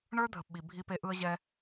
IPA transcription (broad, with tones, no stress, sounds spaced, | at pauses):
ɳ ə˞˦ dʱ ə˨ p ɓ i˨ bʱ i˧ p e˧ ʔ ɯ˧ ə̯ ʑ ɛ˧